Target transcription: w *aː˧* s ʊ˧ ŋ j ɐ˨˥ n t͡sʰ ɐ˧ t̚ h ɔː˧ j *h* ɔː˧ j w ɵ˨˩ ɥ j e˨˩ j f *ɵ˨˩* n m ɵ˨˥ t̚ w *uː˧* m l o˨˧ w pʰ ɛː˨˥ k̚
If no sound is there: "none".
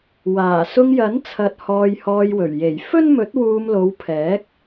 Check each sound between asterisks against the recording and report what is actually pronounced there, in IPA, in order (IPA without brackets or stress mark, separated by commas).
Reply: aː˨˩, h, ɵ˥, uː˧